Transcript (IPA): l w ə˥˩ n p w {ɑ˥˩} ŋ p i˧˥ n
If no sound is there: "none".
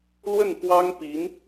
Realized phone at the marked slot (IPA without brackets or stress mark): ɑ˥